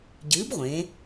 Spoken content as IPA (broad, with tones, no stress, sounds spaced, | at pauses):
ɟ ɨː˨˥ b ʁʷ ẽ˩˧